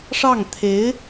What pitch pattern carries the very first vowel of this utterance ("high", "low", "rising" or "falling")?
falling